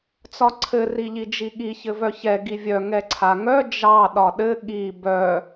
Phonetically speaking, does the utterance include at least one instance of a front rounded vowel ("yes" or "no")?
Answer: yes